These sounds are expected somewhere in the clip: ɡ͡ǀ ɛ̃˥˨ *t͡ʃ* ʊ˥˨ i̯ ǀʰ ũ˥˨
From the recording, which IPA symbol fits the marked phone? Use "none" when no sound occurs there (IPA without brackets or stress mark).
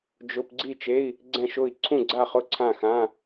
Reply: ʃ